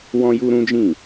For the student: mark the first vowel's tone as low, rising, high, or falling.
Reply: high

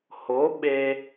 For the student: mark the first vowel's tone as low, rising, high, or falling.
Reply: rising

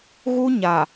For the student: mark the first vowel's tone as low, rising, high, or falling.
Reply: high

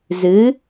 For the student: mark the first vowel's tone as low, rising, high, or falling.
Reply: rising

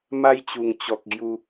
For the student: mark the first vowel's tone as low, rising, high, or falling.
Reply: high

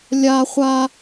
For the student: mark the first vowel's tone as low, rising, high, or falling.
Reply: high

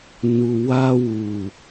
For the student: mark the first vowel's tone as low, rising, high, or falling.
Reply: low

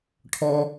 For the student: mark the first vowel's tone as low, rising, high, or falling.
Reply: high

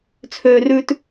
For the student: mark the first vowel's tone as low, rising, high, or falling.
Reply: high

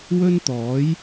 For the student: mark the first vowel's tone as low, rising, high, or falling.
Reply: high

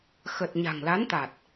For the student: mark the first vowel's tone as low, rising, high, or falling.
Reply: low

